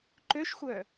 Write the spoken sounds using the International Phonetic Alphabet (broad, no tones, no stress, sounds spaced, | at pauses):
ǃ ø ʃ xʷ œ